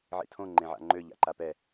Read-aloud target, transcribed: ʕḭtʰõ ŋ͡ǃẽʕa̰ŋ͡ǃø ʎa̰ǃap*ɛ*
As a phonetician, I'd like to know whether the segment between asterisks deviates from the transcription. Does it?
no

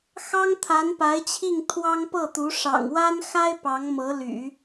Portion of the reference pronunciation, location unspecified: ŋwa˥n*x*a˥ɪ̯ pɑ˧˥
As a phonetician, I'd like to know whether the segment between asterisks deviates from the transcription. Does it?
no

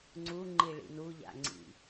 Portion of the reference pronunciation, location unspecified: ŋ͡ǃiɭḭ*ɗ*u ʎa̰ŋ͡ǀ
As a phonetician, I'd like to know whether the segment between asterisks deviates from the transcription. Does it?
yes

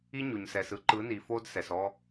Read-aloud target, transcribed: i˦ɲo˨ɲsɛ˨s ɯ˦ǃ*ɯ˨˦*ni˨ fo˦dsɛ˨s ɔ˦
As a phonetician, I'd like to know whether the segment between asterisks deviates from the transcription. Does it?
no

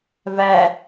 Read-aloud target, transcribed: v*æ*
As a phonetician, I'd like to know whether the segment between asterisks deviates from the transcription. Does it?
no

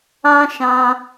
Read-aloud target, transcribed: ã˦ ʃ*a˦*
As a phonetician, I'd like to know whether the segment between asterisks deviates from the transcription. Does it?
yes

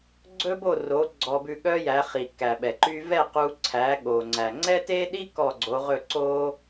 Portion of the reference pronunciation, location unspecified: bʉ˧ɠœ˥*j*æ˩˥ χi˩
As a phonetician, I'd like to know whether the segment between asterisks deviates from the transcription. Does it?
no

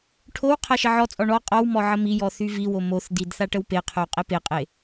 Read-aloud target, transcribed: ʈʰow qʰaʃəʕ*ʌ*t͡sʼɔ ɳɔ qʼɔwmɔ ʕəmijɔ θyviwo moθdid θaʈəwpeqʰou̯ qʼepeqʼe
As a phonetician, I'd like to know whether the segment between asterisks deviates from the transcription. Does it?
yes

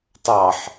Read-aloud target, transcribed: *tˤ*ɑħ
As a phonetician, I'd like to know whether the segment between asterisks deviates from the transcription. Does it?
no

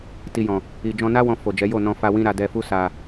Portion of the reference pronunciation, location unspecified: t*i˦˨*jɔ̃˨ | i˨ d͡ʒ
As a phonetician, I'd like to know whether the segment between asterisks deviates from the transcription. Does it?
yes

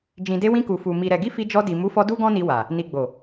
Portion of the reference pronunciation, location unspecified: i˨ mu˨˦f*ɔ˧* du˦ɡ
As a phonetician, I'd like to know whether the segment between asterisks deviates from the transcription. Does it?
no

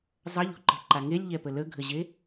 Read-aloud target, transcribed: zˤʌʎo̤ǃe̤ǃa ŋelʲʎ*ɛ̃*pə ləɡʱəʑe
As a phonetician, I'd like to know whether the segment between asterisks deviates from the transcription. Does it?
yes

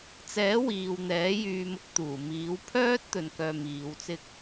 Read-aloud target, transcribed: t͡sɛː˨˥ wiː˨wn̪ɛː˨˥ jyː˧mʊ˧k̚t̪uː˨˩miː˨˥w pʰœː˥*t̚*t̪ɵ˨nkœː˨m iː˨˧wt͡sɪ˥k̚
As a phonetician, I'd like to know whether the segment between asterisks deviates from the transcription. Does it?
no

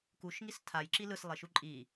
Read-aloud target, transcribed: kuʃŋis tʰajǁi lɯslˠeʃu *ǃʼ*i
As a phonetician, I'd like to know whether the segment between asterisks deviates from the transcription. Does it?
no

